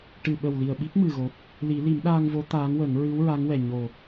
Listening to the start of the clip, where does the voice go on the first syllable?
low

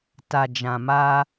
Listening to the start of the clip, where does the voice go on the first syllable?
low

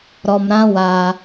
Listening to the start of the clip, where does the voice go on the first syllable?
low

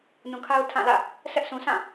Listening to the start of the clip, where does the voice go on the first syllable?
low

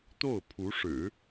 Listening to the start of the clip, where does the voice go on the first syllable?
falling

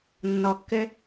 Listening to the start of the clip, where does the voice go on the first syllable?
low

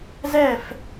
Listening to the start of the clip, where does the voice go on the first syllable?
falling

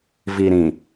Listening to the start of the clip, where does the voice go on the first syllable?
low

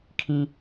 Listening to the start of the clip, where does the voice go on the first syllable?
high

